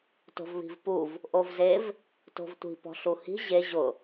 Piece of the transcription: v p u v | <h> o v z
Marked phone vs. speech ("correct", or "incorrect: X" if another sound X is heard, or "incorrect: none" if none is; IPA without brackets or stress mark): incorrect: ʔ